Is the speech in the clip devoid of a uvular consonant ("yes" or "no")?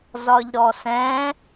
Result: yes